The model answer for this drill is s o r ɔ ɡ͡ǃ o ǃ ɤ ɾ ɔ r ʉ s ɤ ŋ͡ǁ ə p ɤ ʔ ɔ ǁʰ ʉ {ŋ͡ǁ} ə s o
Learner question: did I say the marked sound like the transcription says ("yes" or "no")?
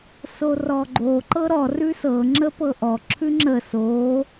yes